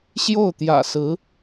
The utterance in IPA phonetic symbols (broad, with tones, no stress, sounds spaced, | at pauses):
ɕ j o˥˩ ʊ̯ t̪ j ä̰˨˩ s ɹ̩˧˥